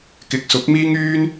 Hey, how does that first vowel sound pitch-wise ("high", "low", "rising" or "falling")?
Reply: rising